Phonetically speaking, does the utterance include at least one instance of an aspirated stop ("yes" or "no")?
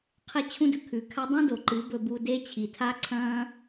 yes